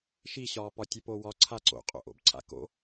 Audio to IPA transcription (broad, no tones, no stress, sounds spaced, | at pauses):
ʃ i ɕ ɒː p ɒ tʲ ə p o w ɒ ǀʰ a ǀ o̰ qʼ o̰ ʔ o̰ b ǀʰ a̰ k o̰